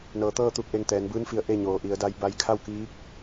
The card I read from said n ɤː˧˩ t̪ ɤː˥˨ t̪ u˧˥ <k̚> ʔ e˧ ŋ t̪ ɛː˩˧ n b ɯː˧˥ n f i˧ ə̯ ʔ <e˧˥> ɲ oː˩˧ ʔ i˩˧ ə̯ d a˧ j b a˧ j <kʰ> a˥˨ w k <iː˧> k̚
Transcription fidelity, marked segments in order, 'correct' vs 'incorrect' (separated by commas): correct, incorrect, correct, incorrect